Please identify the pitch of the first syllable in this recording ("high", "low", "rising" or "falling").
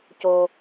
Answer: low